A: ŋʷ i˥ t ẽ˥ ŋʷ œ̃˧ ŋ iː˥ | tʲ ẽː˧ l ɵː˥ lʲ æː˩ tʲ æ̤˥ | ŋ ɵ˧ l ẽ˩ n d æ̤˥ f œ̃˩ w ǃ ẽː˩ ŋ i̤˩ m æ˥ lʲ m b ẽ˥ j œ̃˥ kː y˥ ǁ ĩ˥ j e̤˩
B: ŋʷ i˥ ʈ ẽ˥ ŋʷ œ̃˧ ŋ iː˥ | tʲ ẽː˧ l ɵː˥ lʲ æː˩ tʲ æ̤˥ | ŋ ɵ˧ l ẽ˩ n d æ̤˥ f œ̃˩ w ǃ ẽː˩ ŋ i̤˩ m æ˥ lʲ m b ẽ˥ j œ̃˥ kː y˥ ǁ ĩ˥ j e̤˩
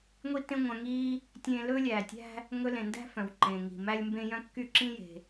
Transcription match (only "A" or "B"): A